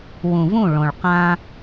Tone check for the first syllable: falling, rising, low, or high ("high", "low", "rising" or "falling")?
low